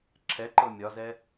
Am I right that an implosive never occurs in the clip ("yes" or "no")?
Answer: yes